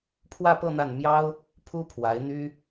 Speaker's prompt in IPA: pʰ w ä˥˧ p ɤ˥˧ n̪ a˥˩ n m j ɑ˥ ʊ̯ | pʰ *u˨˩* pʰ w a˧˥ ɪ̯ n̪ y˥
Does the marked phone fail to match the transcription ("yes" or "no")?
yes